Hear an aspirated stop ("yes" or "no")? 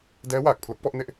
yes